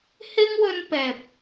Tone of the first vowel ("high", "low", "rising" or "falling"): high